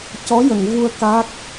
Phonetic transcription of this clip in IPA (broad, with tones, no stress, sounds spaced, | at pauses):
c ɔ˧˥ j ə˨˩˨ ŋ v u˧ ə̯ k a˦˥ k̚